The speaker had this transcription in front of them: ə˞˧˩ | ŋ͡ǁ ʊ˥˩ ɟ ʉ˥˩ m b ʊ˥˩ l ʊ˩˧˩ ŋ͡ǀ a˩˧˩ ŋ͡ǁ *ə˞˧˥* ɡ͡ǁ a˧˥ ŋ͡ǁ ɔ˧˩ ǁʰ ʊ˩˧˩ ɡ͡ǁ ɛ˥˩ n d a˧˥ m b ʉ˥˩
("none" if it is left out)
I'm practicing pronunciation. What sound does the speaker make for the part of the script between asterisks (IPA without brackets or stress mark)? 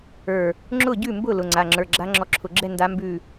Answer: ə˞˩˧˩